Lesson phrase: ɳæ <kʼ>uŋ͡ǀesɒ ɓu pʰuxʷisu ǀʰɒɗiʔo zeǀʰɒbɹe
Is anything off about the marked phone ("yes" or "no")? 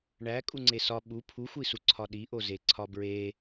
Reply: no